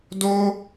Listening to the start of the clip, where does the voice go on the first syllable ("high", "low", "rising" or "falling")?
high